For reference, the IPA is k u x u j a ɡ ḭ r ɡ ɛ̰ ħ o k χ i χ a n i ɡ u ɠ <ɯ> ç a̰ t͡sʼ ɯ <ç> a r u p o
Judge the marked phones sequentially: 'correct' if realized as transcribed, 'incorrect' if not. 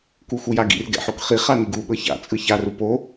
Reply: incorrect: ɤ, correct

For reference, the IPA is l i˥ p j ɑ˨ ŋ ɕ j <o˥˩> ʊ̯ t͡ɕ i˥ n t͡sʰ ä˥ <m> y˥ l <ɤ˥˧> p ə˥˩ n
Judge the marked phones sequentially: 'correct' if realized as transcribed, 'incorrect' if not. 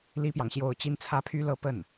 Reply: correct, incorrect: pʰ, correct

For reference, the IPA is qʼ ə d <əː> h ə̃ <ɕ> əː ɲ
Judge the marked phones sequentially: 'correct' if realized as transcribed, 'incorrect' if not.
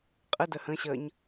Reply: incorrect: ə, correct

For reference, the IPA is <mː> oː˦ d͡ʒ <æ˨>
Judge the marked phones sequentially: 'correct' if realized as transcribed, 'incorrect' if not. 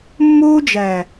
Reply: correct, correct

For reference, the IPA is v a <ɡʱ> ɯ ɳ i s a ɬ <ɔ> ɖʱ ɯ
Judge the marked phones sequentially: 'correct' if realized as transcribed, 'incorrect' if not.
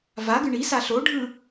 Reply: incorrect: ɡ, incorrect: o

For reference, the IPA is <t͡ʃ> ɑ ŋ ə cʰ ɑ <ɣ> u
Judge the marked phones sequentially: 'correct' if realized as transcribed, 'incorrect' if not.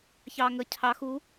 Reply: incorrect: ç, incorrect: x

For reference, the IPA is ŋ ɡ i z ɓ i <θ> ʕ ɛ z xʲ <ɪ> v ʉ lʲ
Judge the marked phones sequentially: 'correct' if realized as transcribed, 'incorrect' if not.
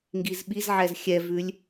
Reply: incorrect: z, incorrect: ɛ

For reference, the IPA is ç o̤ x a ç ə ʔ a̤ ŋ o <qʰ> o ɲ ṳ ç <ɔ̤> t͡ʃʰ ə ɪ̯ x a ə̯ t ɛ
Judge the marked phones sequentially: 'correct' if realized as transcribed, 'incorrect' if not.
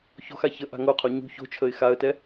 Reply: correct, incorrect: o̤

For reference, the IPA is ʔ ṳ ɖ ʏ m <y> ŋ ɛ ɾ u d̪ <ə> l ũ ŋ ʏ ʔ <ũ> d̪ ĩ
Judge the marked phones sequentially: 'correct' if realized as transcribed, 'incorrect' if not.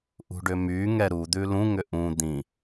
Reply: correct, incorrect: ʉ, correct

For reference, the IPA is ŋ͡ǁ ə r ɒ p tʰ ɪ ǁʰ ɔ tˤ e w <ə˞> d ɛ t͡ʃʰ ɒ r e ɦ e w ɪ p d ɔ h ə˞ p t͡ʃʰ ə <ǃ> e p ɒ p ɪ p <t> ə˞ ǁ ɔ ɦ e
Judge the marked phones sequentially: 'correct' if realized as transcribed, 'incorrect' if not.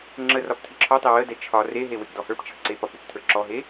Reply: incorrect: ə, incorrect: ǀ, incorrect: tʰ

